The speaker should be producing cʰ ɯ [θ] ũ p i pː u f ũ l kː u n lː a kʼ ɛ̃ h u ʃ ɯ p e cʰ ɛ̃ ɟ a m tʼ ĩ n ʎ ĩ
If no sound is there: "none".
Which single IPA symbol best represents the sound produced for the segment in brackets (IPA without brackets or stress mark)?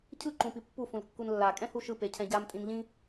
ǃ